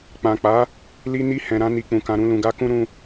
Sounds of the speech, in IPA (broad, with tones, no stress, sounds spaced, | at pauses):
k͡p ã˨ k͡p a˨˦ | l i˦ n i˦ h ɛ̃˧ ɾ ã˦ n i˧ k͡p ũ˧ k ã˧ ɾ ũ˦ l ũ˧ ɡ a˦ k ũ˦ ɾ ũ˦